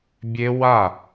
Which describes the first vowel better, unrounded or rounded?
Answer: unrounded